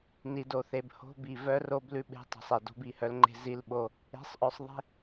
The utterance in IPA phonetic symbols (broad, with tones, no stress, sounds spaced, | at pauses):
n i˨ d o˨ θ e˨ b h o̤˦ b i˨ v œ˦ r o˦ b l ʉ˦ ɓ e̤˦ tˤ i̤˨ sˤ e˨ d o̤˦ b i˨ h œ˦ l ŋ͡ǃ e̤˦ z i˦ l ɓ o˦ | e̤˨˦ sˤ ʔ œ˨ sˤ ðˤ e̤˦